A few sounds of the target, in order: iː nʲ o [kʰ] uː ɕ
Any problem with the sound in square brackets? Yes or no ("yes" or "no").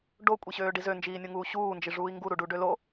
yes